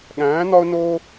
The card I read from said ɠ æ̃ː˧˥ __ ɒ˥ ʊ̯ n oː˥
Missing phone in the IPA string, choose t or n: n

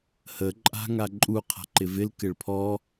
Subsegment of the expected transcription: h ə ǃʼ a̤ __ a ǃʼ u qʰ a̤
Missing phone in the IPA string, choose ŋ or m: ŋ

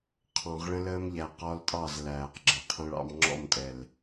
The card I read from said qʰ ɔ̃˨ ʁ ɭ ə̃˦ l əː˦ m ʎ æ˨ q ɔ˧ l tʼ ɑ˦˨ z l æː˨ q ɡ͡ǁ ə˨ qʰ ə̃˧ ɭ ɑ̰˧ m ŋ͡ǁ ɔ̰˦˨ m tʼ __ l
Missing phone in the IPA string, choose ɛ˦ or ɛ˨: ɛ˨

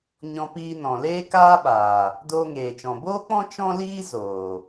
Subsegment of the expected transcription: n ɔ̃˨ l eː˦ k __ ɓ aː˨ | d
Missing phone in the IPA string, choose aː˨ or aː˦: aː˦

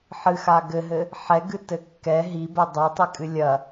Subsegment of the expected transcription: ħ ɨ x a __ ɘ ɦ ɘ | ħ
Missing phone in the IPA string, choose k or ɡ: ɡ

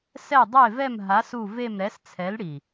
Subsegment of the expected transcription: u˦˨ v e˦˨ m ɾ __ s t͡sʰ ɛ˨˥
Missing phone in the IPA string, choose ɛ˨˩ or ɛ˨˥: ɛ˨˥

